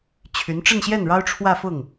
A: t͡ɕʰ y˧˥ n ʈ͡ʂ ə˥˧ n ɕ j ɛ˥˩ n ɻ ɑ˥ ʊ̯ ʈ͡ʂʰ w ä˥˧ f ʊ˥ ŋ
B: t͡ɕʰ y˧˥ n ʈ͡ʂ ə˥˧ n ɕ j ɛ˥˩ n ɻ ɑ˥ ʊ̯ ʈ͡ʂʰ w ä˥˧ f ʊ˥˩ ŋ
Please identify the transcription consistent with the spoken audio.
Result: B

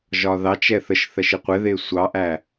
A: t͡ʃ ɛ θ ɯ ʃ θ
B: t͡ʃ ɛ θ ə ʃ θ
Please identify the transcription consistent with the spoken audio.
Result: B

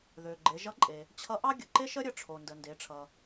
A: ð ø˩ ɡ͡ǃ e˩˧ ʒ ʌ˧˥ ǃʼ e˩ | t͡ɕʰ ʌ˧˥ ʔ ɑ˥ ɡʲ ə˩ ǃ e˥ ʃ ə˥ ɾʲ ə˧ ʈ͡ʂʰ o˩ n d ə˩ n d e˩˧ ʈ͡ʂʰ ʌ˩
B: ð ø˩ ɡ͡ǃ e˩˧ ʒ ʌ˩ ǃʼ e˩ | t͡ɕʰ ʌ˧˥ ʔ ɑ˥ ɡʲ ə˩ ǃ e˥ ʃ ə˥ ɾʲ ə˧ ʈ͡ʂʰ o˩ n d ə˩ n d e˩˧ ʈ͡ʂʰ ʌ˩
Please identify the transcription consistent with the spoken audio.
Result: A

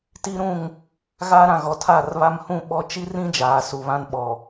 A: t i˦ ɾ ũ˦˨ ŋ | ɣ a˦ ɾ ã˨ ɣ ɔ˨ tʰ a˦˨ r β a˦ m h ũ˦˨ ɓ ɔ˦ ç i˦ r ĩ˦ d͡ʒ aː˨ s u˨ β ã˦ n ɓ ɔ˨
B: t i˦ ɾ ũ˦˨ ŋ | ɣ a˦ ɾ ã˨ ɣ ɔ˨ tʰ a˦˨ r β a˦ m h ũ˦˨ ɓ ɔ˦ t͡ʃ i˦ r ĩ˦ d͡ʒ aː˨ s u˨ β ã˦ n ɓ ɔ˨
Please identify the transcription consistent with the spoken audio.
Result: B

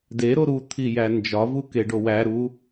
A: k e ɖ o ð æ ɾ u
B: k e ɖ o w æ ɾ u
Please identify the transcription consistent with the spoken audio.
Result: B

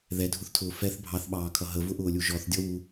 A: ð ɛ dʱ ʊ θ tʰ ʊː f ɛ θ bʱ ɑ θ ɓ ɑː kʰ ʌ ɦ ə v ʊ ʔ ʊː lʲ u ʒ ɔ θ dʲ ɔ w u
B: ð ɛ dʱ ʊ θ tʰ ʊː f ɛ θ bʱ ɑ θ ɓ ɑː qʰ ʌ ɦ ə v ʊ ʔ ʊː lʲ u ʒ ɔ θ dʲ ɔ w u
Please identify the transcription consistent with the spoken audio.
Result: A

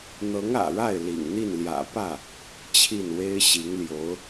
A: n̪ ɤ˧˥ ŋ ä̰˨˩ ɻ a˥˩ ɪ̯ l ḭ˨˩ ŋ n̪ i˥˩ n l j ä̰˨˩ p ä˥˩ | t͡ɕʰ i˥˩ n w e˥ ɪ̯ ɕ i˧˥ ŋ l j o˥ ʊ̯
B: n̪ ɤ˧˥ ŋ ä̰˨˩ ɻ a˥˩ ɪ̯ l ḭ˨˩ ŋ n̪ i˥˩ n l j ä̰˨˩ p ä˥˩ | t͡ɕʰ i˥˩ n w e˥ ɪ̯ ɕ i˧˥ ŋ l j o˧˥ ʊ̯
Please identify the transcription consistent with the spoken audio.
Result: B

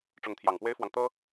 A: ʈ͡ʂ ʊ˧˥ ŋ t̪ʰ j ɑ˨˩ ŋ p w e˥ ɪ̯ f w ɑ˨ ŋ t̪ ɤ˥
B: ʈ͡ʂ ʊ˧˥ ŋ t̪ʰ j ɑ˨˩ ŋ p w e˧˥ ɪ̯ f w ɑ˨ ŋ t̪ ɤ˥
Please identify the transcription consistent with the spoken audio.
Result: A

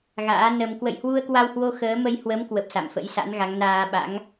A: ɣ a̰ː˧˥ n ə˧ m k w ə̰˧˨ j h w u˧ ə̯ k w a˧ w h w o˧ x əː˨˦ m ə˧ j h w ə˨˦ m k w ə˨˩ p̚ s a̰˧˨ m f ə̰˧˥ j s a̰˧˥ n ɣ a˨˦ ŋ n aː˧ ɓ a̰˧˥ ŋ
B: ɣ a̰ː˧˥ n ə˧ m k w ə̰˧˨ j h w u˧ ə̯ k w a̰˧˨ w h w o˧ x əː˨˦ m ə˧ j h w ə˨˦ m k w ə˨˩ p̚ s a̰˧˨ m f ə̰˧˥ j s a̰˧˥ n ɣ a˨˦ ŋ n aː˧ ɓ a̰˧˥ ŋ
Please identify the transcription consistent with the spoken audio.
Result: A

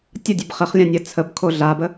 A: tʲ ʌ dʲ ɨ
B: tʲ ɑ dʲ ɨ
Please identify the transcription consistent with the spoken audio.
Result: A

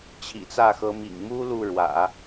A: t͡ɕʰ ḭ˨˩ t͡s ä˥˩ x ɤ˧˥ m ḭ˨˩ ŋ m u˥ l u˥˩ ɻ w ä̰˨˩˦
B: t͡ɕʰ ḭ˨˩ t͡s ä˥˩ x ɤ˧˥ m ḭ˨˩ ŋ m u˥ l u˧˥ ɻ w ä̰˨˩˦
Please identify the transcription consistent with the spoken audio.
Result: A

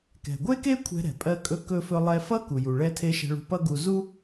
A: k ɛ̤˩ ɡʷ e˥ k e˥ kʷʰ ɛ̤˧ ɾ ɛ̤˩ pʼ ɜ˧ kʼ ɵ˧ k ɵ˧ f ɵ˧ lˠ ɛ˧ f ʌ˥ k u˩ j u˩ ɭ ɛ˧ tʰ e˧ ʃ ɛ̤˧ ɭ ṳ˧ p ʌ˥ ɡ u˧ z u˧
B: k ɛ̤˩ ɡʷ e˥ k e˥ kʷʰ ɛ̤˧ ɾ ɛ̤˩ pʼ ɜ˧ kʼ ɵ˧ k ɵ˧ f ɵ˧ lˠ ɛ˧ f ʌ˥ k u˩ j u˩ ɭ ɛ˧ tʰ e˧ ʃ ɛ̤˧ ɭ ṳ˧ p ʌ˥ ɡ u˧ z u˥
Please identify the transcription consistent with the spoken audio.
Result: B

